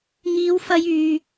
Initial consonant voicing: voiced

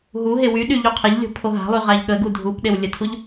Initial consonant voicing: voiced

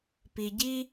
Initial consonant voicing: voiceless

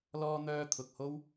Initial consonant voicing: voiced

